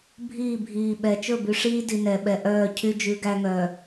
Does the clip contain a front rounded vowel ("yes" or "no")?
yes